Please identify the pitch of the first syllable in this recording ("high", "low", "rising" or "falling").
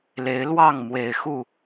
rising